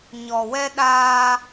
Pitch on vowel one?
low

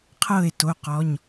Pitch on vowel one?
falling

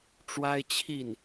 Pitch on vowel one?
high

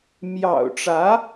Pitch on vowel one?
low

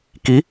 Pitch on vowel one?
rising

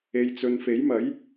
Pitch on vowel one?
low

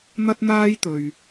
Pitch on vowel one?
high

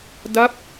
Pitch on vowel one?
falling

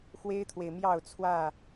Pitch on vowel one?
high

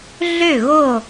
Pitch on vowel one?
falling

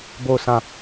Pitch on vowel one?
falling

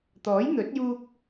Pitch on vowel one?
rising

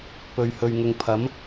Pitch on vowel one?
low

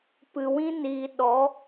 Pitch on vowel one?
low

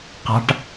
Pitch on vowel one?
high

